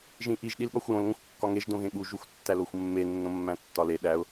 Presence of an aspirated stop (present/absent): absent